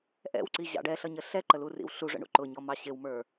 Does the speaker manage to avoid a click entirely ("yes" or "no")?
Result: no